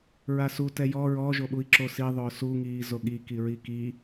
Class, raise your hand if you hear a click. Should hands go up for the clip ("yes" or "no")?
yes